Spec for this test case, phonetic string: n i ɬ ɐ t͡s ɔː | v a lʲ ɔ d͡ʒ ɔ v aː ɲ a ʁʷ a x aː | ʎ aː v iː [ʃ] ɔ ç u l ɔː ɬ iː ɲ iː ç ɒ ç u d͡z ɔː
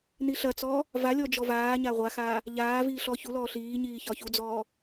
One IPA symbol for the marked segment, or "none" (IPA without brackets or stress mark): ɬ